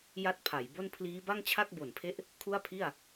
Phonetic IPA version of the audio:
ja˥˩t̚pʰa˩˦jbo˥˩n pʰliː˦˥ba˥˩ŋt͡ɕʰa˥˩k̚ bo˨˩npʰe˦˥ʔ | kʰu˥˩a̯pʰi˥˩a̯

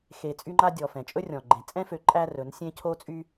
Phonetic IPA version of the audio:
xe˨ t͡sʼy˦ŋ͡ǃa˦ dʲɔ˨fɛ̃˨t͡ʃʼɵ˦rʲɔ̃˨ ɡ͡ǃẽ˨ t͡sʼɛ̃˦fø˨˦ ǃʼæ˦rɵ˨˦nsʲẽ˦ cʰo˦t͡sʼy˦

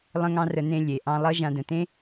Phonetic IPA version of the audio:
lˠə̃˥ŋɑ̃˥rə˧ nẽ˧ lʲe˩ʔɑ̃˧lˠʌ˥ ʒã˧də̃˩tẽ˥

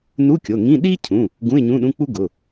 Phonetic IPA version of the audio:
nu˧˥˧kʲo˩˧˩ŋĩ˧˥˧ ɗi˥cʰũ˩˧˩ | ɡũ˧˥˧ɪ̯ɲũ˧˥˧ɗũ˧˥˧k͡pu˥ ɡʊ˩˧˩

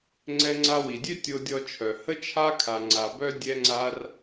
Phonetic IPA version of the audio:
ŋ͡ǀɛ˧ŋ͡ǀa˧wi˨dʲø˦ tʲo˧dʲɔ˧t͡ʃʰœ˨ hə˦t͡ʃʰa˦kʰa˨ ŋ͡ǀa˨bœ˦ dʲɛ˧ŋ͡ǀa˧r

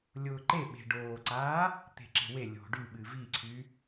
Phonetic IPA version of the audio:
lʲʊːǃeɓe̤ ɖoːǀaː | t̪e̤ǁe̤we lʲo̤ ɖyɓɨ viǀʰy

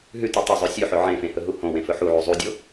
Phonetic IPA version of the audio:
ɦʉtʉ tˤɵzˤʉ sʲʉħɵ ʕẽfẽ hɵɦuhõwẽ fɵħuʕu zˤudʲo

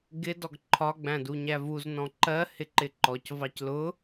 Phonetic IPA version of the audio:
ɡɪ dɔɡǃʰɒ ɡ͡bæ̃duɲævuz nɔ̃ǃɜ hɪǃɪǃɔc vɑclʊ

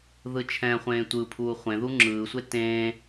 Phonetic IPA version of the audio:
ðɯt͡ʃʰɛ̃χʷẽː tʷɯpʰuː χʷẽðu ŋ͡ǁɯːsʷe tẽː

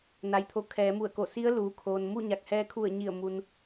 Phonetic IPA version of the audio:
na˩jt̪ʰo˩˧ kʰɛː˩˧mu˧˩ə̯ko˧˩si˧˥ə̯ luː˩kʰoː˩n mu˥˨ɲa˧˩k̚hɛː˧ kʰu˧˩ə̯ɲi˧˩ə̯ mu˧n

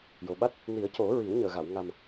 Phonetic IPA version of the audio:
jo˨˩ɓa˦˥t̚ | ni˨˩˦ə̯co˨˩˦ ɹi˨˩˦wɲəː˨˩ɣa˨˩˨w ŋa˨˩m

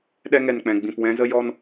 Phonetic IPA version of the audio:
ɗɛ˧ŋɛ˨nk͡pɛ̃˨ ɡ͡bĩ˨pwɛ̃˧zə˧ jɔ˧n

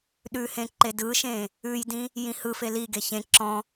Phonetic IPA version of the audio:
ɗʉhẽ ǃedɯʃẽ | ʉjdĩ | jĩhɯfe liɡe çẽ ǁɔ̃

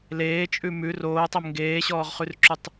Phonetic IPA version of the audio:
leːt͡ʃʼʉ mʉ roːtˤɛm ŋɡeːɕɔːʁχʉrǁʉtˤ

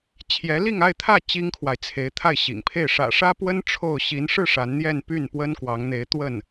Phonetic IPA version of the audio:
t͡ɕʰjɛ˧˥li˥˧ŋa˥˧ɪ̯t̪ʰä˥˩ t͡ɕi˥ŋkʰwa˨ɪ̯t͡sʰe˧˥ɪ̯t̪ʰa˥˩ɪ̯ ɕḭ˨˩ŋpʰe˥˩ɪ̯ ʂä̰˨˩ʂä˥pwə˥n ʈ͡ʂʰo˥˩ʊ̯ ɕi˧˥nʂɻ̩˥˩ ʂa˧˥nn̪jɛ˥˧n py˥˩npwə˥n kwɑ˧˥ŋn̪e˧˥ɪ̯ t̪wə˥˩n

